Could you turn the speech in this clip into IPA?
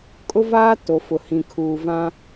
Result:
kʼ ʊ˦ v aː˦ t o˨ f ʊ˨ h ĩ˨ kʰ uː˨ v ã˦

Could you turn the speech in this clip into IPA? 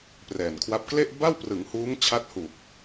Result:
p r ɛː˨˩ n kʰ w a˦˥ p̚ k l e˥˩ ʔ b a˥˩ w p r ɯ˩˦ ŋ h uː˦˥ ŋ t͡ɕʰ a˦˥ t̚ h uː˨˩ k̚

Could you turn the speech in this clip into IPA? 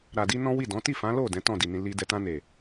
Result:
ɾ a˨ d i˧ n ɔ̃˦ w i˦˨ d ɔ̃˨˦ t i˦˨ f ã˨˦ l o˦˨ d ɛ̃˨˦ t ɔ̃˦˨ d i˨ n ĩ˧ l i˧ d ɛ˧ t ã˧ n e˨

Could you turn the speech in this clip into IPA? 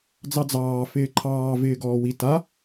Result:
d͡z ɑ d͡z ɑː f ɪː ǃʰ ɑː v ɪː ɡ ɔː w i t a

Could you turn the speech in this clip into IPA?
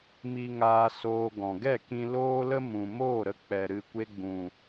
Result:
m i˧ ŋ aː˧ s oː˧ ɡ ɔ̃˨ ɡ ɛ˦˨ k ĩ˧ l oː˦ l ə˦ m ũ˨ m oː˦˨ ɾ ə˧ k͡p ɛ˨ ɾ ɨ˧ kʷ e˧ ɡ͡b ũ˨

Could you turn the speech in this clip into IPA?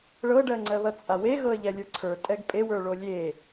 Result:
ɭ ɤ ɖ ɜ ŋ͡ǀ ɜ β ɐ t͡sʼ a w e ɣ ɤ ə̯ ʎ ɛ lʲ ə˞ ǀʰ ə˞ tʼ ɛ ɡ pʼ e w ə˞ ɭ o lʲ e

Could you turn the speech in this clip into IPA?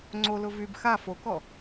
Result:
ŋ͡ǀ o l ʊ v y b x a f o k ɔ

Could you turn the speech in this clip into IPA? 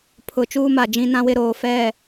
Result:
pʰ ʊ˨ t͡ʃ uː˦ m a˨ d͡ʒ ĩ˦ n ã˦ w ɪ˦ ɾ oː˨ f ɛ˦˨

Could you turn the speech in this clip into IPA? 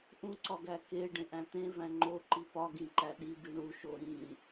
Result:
ʔ ũ ǀ ɒ ɡ æ k e ɖ ẽ ʔ æ̃ t̪ ẽ v æ̃ ŋ͡ǃ o ǃ i p ɒ ɡ ĩ ǃ æ ɗ i b i ɳ u ʃ o ɾ ĩ

